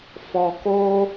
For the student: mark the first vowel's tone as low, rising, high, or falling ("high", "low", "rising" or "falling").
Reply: low